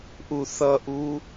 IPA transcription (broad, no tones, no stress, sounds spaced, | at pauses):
ʔ u θ ʌ ʔ u